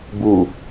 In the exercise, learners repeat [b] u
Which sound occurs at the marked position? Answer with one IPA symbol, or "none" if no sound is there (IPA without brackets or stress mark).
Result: b